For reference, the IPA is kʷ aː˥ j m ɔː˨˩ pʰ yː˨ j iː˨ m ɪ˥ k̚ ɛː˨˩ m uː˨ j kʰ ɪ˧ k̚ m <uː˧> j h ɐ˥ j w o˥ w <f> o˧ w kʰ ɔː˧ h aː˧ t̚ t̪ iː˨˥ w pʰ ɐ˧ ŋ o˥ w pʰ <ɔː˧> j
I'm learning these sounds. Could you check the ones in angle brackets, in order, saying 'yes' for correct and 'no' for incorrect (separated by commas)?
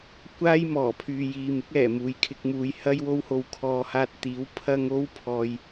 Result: no, no, no